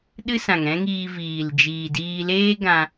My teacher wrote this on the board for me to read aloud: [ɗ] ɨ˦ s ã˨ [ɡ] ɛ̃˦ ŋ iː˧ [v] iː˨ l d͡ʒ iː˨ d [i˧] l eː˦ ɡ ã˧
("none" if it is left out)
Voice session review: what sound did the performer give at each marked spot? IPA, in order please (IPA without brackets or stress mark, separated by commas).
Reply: ɗ, ŋ, v, iː˧